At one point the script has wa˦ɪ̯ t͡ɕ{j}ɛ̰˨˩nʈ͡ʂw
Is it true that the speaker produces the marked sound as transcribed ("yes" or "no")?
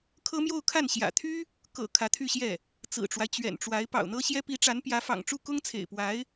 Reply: no